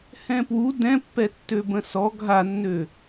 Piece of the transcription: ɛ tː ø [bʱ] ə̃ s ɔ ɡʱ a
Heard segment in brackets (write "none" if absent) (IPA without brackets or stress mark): b